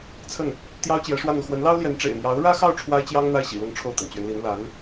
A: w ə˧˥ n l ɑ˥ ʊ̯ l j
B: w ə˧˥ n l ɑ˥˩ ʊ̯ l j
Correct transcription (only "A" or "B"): A